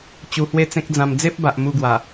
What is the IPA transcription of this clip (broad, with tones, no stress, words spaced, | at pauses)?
t͡ɕu˧hwe˥˧t͡sẽ˦k̚d͡zã˧m d͡ze˦p̚ba˨ʔ mu˧ɡwa˨˩